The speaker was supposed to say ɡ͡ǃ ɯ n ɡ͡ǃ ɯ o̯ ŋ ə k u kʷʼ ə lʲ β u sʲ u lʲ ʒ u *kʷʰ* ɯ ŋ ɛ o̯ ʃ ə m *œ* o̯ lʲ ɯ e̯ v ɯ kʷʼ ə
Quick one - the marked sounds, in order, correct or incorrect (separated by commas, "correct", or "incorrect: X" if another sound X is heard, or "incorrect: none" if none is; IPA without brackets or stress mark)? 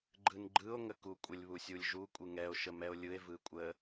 incorrect: kʷʼ, incorrect: ɛ